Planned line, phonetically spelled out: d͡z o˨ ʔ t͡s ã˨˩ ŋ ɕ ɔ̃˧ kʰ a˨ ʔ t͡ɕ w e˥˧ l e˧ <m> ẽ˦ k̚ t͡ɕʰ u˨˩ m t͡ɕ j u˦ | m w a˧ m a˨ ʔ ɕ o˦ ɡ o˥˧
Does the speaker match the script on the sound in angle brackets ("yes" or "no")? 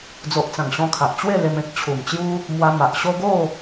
yes